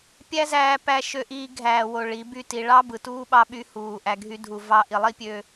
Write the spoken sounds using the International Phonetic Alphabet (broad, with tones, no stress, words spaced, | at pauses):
pʲæ˦zæː˧pæ˧ ʃø˧ʔiː˧ ɡʱæː˨wo˨ ɭi˨˦by˦ti˧ ɭɑ˦bɯ˨tuː˦ ɓɑ˦ɓy˦huː˧ ʔæ˧ɡʱy˦dʱu˧ vɑ˧ʔi˨lˠi˦pʲø˧